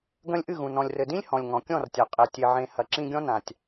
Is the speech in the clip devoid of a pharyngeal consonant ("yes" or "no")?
no